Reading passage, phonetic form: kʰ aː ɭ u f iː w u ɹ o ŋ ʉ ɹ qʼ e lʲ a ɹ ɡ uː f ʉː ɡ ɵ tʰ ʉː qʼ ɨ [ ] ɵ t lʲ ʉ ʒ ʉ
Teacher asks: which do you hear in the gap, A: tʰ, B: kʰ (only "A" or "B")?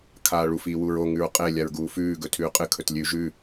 B